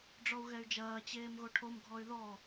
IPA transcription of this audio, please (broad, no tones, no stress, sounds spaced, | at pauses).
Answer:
ɖ͡ʐ ɔ u̯ ɣ ɛ y̯ d͡ʒ ɐː t͡ɕ eː m ɣ o ʈʰ o m ɡʱ ɔ y̯ ð ɔ